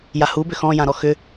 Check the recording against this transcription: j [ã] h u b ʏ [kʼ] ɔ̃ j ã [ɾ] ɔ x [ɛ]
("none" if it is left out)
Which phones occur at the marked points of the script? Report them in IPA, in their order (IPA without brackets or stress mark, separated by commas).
a, x, ɾ, ʏ